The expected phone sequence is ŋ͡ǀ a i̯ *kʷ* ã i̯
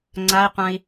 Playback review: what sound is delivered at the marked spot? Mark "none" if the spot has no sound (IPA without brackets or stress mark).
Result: qʷ